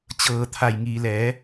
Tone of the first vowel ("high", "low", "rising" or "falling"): low